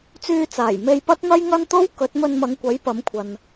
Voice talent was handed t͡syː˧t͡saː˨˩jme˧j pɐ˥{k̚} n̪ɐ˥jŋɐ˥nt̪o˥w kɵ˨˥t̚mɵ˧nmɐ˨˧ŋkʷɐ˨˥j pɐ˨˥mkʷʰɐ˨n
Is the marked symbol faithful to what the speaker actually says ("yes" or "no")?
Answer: no